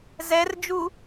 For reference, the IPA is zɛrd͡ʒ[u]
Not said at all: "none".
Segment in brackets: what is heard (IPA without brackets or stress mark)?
u